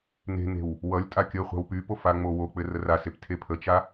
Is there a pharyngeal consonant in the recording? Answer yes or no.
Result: no